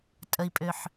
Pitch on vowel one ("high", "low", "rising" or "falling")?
low